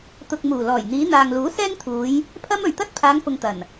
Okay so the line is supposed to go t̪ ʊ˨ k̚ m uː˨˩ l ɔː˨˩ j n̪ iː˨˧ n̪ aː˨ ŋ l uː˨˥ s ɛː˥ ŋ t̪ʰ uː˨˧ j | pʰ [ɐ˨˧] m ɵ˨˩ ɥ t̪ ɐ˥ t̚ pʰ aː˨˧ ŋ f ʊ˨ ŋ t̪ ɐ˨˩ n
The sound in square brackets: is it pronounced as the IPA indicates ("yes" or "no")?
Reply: no